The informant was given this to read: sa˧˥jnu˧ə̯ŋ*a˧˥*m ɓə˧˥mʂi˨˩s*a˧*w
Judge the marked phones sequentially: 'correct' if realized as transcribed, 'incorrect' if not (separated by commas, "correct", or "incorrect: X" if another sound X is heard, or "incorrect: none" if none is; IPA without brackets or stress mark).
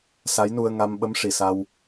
incorrect: a˧, correct